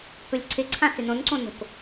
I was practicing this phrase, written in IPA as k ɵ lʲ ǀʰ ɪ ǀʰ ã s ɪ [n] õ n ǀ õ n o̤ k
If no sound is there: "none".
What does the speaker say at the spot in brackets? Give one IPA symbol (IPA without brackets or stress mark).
n